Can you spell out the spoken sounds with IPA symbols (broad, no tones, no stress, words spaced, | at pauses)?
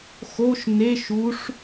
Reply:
xoʃ neʃ uʂ